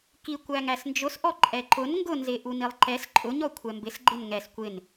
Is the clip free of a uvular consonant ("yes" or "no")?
yes